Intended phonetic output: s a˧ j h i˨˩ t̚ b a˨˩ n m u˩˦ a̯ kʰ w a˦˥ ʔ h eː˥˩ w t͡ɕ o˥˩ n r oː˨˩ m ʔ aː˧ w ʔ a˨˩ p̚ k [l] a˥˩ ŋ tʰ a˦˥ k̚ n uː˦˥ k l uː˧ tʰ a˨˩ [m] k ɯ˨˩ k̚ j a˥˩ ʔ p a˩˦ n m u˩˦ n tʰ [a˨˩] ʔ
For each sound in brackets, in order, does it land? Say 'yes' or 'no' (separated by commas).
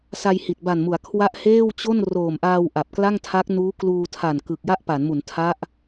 yes, no, no